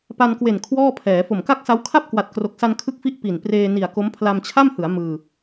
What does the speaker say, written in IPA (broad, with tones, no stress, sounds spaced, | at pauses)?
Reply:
p a˧ n k w e˨˩ n kʰ w ɔː˥˩ pʰ ɛː˩˦ f o˨˩ m k a˥˩ k̚ s a˦˥ w kʰ a˥˩ p̚ k w a˨˩ t̚ k r o˨˩ k̚ s a˧ n kʰ ɯ˥˩ k̚ f i˥˩ ʔ p i˨˩ n p r eː˧ n i˨˩ a̯ k o˦˥ m pʰ l a˧ m t͡ɕʰ a˥˩ m h ɯ˩˦ a̯ m ɯː˧